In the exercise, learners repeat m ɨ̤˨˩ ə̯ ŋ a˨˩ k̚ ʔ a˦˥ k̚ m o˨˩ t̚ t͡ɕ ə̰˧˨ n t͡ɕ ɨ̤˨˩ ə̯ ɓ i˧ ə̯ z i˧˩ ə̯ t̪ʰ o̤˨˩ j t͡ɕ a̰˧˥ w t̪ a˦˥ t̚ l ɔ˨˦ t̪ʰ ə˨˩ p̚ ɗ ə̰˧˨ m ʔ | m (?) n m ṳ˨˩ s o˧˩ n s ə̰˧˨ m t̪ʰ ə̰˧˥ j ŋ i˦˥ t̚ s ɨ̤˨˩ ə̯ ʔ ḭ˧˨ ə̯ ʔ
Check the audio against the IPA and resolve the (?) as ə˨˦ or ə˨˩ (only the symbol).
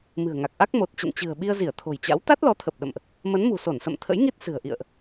ə˨˦